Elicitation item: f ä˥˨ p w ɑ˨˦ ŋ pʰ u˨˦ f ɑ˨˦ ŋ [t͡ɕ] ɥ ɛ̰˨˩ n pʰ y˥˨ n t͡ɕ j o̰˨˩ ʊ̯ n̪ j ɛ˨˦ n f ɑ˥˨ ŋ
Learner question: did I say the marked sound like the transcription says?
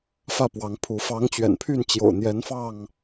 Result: yes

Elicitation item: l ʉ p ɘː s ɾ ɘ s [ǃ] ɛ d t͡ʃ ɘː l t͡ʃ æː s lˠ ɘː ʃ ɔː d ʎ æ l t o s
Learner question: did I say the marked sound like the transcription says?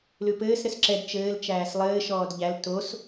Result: no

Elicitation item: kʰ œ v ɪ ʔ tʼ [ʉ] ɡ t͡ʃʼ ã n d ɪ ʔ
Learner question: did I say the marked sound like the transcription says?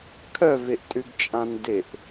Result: yes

